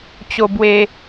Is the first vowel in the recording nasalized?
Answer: no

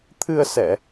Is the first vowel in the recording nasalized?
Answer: no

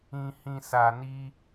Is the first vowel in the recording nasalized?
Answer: yes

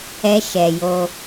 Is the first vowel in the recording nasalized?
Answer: no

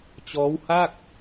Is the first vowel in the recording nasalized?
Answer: no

